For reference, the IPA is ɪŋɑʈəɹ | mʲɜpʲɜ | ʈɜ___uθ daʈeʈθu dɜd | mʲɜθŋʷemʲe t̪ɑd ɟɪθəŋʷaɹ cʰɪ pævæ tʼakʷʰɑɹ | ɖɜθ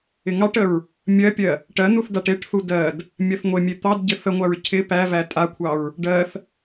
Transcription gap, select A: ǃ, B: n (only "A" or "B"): B